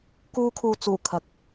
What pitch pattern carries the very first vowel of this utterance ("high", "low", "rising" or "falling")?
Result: high